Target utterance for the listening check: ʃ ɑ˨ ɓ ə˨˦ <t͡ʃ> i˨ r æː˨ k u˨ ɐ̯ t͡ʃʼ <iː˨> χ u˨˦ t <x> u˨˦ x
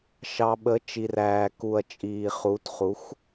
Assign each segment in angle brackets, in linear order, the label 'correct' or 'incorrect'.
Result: correct, correct, incorrect: χ

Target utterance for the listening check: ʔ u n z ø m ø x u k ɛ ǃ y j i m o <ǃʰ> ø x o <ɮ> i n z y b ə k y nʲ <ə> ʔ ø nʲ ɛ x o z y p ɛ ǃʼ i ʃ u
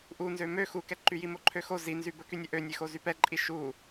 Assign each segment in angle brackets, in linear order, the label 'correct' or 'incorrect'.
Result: correct, incorrect: z, correct

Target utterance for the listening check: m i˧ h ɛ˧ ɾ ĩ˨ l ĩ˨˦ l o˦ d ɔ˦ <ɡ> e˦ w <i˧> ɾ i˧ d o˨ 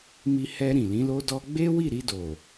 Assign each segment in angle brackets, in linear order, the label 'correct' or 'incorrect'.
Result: incorrect: ɡ͡b, incorrect: i˦˨

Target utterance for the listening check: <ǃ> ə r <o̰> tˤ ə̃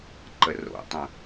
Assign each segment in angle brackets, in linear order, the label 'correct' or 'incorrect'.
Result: correct, correct

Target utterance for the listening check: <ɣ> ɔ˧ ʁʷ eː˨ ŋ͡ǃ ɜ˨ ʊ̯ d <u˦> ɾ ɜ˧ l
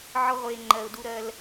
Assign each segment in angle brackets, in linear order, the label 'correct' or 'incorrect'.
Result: incorrect: ʕ, incorrect: u˧

